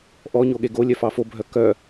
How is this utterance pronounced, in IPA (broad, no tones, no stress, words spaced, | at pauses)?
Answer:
ʔɔɲoɠe ɡolʲœfɑ fobʱœ kœ